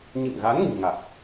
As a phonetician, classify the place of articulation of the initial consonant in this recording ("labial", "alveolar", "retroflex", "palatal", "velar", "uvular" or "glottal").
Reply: palatal